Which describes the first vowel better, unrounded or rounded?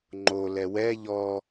rounded